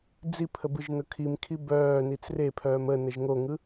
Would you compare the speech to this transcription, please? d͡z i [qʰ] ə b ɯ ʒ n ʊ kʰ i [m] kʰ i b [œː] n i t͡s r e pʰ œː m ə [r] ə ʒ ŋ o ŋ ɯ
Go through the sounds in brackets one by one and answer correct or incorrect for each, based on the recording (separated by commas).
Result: incorrect, correct, correct, incorrect